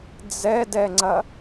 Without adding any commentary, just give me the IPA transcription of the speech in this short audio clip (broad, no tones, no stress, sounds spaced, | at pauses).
d͡z ɛ d ɛ ŋ͡ǀ ɐ